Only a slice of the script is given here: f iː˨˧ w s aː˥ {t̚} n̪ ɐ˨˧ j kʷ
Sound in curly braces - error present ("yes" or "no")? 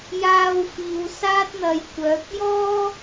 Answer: no